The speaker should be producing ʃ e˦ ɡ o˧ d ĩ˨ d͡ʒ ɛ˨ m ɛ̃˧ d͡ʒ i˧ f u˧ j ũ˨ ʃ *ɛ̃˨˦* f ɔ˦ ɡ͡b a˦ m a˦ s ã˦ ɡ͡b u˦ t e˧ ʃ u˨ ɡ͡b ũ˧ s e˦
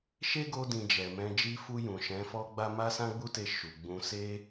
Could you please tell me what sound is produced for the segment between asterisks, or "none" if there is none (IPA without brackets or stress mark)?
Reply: ɛ̃˨˦